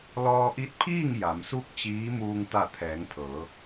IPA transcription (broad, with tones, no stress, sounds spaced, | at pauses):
l ɔː˧ ʔ i˧˥ t̚ pʰ iː˥˨ ŋ j a˩˧ m s u˥˨ k̚ t͡ɕ iː˧˥ m uː˧ ŋ t̪ a˧˩ t̪ʰ ɛː˩˧ ŋ pʰ ɤː˩˧